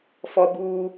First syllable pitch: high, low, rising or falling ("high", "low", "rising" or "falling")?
high